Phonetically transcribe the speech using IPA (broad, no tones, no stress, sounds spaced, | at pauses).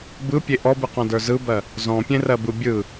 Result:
b ɯ pʲ e ʔ ɔ b ɯ q ɔ̃ d ə˞ z ɯ b ɜ | z ɔ̃ pʲ ẽ r ɜ b ɯ bʲ ɯ